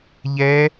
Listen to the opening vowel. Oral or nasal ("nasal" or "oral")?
oral